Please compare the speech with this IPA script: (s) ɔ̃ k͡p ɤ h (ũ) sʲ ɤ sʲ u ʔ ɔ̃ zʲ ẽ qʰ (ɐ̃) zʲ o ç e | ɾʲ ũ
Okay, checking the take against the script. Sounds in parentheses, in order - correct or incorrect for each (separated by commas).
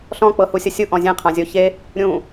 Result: incorrect, incorrect, incorrect